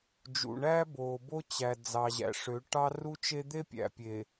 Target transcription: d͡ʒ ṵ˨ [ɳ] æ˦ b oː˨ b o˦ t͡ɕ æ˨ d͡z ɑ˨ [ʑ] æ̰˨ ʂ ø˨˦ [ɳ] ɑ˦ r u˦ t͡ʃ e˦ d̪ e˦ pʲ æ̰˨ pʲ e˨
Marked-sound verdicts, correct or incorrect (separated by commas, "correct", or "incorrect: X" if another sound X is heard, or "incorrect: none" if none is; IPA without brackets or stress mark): correct, correct, incorrect: ʈ